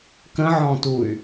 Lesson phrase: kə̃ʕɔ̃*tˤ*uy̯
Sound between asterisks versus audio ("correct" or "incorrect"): incorrect